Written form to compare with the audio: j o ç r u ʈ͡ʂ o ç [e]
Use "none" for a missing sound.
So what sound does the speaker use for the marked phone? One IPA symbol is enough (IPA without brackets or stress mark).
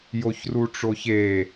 e